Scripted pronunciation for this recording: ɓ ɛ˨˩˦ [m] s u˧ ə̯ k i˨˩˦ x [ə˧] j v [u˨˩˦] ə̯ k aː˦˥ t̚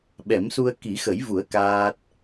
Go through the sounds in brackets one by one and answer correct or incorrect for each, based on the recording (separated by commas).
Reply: correct, incorrect, correct